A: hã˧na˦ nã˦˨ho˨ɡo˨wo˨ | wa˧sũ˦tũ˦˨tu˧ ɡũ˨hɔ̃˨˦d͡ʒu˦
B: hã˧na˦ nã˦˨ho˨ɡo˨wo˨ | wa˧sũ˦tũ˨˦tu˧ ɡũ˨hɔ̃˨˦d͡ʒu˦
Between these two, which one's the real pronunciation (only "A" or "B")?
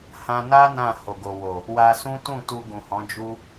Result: A